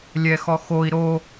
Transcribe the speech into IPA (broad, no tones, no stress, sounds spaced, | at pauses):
lʲ ɛ x ɔ x o i̯ ɾ o